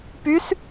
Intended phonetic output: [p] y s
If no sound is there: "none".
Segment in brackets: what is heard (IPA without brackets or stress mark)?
p